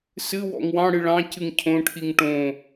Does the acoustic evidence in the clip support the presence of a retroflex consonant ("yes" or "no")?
yes